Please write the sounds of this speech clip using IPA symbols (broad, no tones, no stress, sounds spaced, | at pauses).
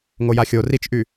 ŋ o j a xʲ o r i t͡ʃ ʔ y